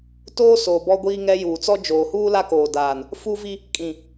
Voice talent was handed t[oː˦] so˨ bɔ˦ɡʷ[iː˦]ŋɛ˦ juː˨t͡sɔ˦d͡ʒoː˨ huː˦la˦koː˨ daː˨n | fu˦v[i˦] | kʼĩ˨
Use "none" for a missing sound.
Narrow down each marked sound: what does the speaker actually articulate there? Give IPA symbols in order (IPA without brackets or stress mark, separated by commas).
oː˦, iː˦, i˦